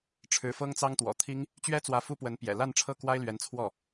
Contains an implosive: no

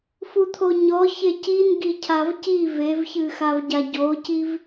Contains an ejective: no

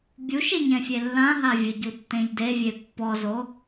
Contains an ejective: no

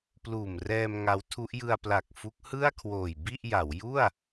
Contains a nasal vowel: no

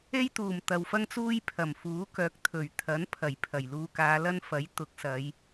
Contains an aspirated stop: yes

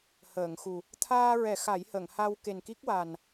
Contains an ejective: no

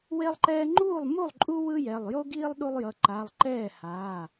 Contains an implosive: yes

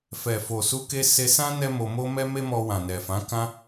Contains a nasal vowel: yes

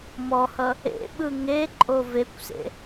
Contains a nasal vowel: no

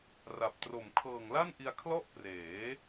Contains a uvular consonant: no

